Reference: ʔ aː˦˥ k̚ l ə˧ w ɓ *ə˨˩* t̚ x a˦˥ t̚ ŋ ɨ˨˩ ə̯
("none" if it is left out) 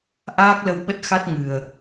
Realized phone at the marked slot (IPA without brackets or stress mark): ə˦˥